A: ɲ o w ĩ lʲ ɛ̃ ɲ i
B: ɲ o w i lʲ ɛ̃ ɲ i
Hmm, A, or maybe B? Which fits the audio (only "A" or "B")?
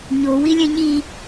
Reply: B